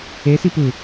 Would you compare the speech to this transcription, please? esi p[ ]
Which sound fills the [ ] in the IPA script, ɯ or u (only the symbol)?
ɯ